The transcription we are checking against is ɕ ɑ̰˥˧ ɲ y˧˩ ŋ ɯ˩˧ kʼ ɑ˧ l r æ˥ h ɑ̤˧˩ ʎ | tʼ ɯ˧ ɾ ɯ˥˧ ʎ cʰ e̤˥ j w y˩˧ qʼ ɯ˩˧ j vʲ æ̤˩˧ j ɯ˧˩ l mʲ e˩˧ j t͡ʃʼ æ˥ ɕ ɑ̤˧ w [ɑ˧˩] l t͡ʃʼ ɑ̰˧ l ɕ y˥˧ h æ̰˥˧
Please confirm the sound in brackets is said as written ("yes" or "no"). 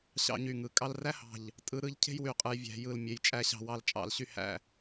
no